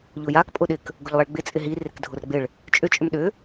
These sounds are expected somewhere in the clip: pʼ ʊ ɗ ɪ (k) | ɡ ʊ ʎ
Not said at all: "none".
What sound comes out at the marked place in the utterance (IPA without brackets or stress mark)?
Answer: k